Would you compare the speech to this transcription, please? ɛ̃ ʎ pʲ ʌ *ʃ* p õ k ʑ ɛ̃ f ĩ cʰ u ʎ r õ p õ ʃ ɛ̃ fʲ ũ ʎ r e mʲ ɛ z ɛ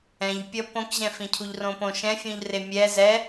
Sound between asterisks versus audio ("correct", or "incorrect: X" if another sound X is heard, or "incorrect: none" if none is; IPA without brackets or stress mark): incorrect: none